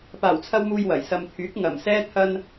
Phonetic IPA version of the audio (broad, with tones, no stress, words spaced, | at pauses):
paː˨˩wt͡sʰɐ˧w muː˧jwɐ˨˩j sɐ˨mt̪ʰyː˨˥k̚ ŋɐ˨˩msɛː˥ t̪ʰɐ˧n